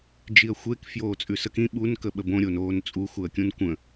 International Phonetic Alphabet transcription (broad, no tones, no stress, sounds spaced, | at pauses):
d͡ʒ i ə̯ xʷ e k f j oː t͡sʼ ʉ s ə k ĩ ɓ u n k ə ɓ ə b õ ɾʲ o n oː n t͡sʼ u x u ə̯ kʲ ũ n kʷ ə̃